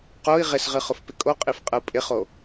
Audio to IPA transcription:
q o i̯ ʁ ɪ s ʁ ɨ χ ʊ f p ɪ kʼ o qʼ i f qʼ ə u̯ pʼ ɪ χ o

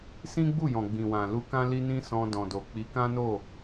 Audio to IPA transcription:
s ĩ˦ ɡ͡b u˦˨ j ɔ̃˨ ɡ͡b ĩ˨ w ã˨ l u˧ k ã˦ l i˦ n ĩ˦ s ɔ̃˧ d ɔ̃˨ d o˨ k͡p i˨˦ k ã˦ n o˦˨

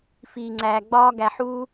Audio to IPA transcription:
f iː˧ ŋ͡ǀ æː˧ ɡ͡b ɒː˦ ɡ æ˧ ħ uː˦

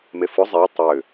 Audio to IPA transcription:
m e f ʊ zˤ e tˤ ʏ

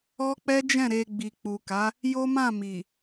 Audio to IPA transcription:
ɔ˦ k͡p ɛ˦ d͡ʒ ɛ̃˦˨ ɾ e˧ ɡ͡b i˨ k͡p u˨ k a˨˦ | j o˦ m ã˦˨ m i˨

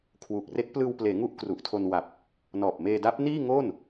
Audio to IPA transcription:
kʰ w u˨˩ k̚ r e˦˥ k̚ p l ɯː˧ w p l eː˩˦ ŋ u˥˩ ʔ k r u˨˩ ʔ tʰ o˧ n w a˨˩ p̚ | n ɔː˨˩ p̚ m eː˧ d a˦˥ p̚ n iː˥˩ ŋ o˥˩ n

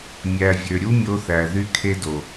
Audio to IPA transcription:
mʲ æ˨ vʲ ø˨ ɾʲ u˦ mʲ o˧ θ æ˨ ð y˧ kʰ e˧ d o˨

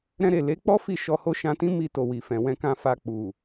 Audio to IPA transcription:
ɾ ɛ̃˧ ɾ e˨ l e˨˦ k͡p ɔ˦ f i˦˨ ʃ ɔ˧ h o˦ ʃ ã˧ t ĩ˦ m i˧ t o˨ w i˨ f ɛ̃˨ w ɛ̃˧ k ã˧ f a˧ k͡p u˨

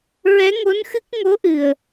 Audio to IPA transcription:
ɹ ɛ˧˥ ŋ o˧˥ n x ɨ˦˥ k̚ ŋ o˧˥ ʔ ɨ˨˩ ə̯

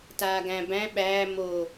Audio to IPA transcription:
t aː ɡ æ̃ b æ̃ ɓ æː m o

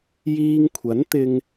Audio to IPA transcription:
j iː˧ ŋ kʷʰ ɐ˨˥ n t̪ ɪ˧ ŋ

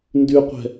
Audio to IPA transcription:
n d y qʷ ɛ̤

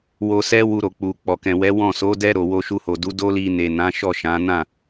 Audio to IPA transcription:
w o˧ s ɛ˦ w u˧ ɾ o˨ k͡p u˨ k͡p ɔ˨ k ɛ̃˨ w ɛ˨˦ w ɔ̃˦˨ s o˨˦ d ɛ˦ ɾ o˧ w o˧ ʃ u˧ h o˨ d u˨˦ d o˦ l i˧ n e˨ n ã˨˦ ʃ ɔ˦˨ ʃ ã˨˦ n ã˦˨

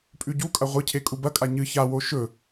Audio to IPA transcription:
pʼ ʉ ɟ u kʼ ɐ ʁʷ ɨ cʰ e kʼ u b ɐ kʼ a ɲ ɨ ç a w o ʃ ɵ

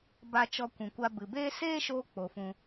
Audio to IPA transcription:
b a˧ t͡ʃ ɔ˧ kʷ ũ˨ kʷ a˧ b ɨ˨ b eː˦ s eː˦ ʃ oː˧ k͡p o˨ f ũ˧

